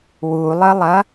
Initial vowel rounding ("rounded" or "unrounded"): rounded